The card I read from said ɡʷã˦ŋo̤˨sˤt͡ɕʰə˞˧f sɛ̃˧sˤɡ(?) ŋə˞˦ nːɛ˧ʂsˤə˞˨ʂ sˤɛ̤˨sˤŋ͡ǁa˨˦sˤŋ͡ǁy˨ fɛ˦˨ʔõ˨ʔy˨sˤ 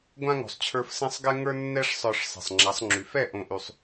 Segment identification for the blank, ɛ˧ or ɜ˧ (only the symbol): ɛ˧